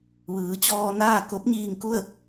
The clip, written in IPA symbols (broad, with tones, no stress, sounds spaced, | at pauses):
ʋ ɯː˩˧ t͡ɕ ɔː˧ n aː˥˨ k o˧˥ p̚ ɲ iː˧ ŋ k u˥˨ ə̯